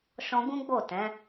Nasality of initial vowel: nasal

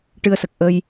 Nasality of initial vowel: oral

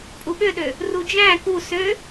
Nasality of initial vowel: oral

